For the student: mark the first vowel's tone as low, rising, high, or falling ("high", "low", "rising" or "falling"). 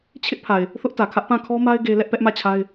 high